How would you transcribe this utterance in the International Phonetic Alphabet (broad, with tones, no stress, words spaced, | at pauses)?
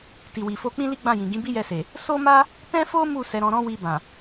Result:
ti˨wi˨fo˧ k͡pĩ˦li˦ɡ͡bã˦˨jĩ˨ ɡĩ˨˦bi˦jɛ˧se˨ | so˦ma˦ | tɛ̃˦fo˦ mu˦˨ sɛ˨˦ɾɔ̃˧ɾɔ̃˦ wi˧bã˨